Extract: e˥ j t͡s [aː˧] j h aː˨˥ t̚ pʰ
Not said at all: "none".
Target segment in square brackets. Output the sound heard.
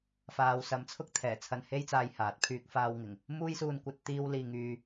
aː˧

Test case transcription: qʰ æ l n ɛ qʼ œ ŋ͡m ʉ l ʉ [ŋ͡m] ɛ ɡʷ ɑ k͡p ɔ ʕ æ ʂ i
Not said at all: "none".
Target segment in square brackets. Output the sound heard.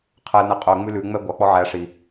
ŋ͡m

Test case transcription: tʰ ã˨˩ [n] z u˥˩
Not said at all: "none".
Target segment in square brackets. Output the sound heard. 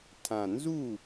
n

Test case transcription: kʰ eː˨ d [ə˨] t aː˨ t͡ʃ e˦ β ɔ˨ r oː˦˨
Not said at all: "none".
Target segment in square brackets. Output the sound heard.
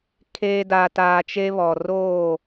a˨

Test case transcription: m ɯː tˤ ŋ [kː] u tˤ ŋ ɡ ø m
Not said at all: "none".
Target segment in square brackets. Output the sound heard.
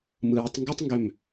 ɡ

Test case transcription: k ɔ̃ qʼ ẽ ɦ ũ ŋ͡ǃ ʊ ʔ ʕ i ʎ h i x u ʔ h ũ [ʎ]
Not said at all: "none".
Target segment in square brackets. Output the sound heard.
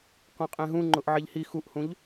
ʎ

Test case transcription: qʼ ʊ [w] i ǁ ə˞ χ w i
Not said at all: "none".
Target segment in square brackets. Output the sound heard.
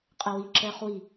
w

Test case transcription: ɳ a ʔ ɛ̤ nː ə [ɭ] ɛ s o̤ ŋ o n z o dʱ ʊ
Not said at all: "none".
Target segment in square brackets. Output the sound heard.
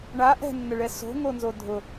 ɭ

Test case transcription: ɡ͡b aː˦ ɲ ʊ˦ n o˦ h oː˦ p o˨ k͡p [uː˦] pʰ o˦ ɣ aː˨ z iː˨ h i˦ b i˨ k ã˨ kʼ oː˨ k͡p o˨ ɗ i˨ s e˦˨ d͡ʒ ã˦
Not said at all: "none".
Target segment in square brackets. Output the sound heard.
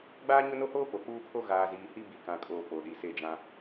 uː˦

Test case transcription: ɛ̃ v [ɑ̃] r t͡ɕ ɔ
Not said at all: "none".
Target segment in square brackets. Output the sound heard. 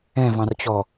ɑ̃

